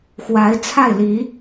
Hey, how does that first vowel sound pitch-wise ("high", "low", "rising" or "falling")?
rising